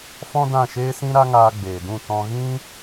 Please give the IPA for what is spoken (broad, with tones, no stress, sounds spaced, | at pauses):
f ɔ̃˦ d ã˦˨ ʃ eː˦ s ĩ˦ ɾ a˦ ŋ aː˧ ɡ͡b eː˨ d ũ˦˨ t ɔ̃˧ ɣ ĩ˦